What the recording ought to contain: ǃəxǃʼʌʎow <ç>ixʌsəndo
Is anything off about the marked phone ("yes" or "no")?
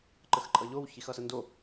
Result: no